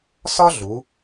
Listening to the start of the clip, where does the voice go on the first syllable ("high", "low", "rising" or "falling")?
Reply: high